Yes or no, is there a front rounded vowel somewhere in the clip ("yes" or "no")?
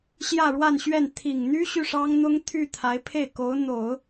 yes